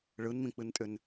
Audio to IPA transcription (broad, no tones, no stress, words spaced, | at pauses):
ɭɯnmĩk͡pɨntʼʏn